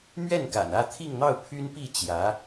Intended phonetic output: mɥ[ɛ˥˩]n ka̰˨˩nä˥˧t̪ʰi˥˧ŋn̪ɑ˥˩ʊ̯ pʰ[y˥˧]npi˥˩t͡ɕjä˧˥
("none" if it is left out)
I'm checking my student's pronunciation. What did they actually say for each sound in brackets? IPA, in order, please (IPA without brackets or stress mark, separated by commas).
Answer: ɛ˥˩, y˥